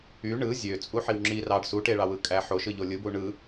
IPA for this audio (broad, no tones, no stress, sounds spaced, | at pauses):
y ɳ ɯ zʲ ø t͡sʼ u ħ i w ŋ͡ǁ i r ɑ ɖ s u ʈ e ɭ ɑ w ɯ kʼ æ ħ o ʃ ɯ ʎ o lʲ ɯ b u ɳ ɯ